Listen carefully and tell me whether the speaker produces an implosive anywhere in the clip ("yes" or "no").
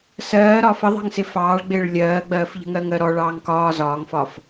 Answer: no